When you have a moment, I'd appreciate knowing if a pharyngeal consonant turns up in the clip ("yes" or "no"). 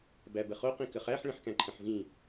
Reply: yes